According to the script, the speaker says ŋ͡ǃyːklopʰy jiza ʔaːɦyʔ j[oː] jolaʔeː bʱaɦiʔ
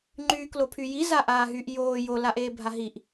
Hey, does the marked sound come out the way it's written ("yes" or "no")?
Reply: yes